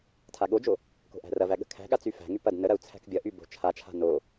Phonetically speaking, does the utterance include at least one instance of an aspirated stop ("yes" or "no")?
yes